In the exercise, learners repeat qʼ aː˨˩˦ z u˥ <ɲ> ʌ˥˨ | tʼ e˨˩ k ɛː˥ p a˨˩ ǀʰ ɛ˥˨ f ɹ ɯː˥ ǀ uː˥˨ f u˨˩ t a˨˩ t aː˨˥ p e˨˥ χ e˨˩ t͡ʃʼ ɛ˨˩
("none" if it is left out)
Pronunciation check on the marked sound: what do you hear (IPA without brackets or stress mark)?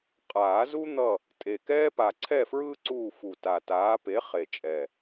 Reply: n̪